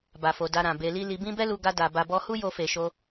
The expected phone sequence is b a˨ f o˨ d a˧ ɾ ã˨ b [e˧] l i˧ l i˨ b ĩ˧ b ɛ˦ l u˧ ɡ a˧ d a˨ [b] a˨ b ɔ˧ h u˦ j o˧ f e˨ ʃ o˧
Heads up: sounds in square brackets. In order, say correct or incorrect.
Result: incorrect, correct

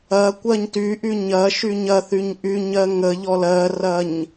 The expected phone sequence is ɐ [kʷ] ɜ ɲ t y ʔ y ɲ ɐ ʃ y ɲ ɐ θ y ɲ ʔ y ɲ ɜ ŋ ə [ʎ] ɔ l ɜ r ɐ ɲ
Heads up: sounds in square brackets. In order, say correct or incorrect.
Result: correct, correct

